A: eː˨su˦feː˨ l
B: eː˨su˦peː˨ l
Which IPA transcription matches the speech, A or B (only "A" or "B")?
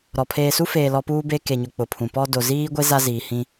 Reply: A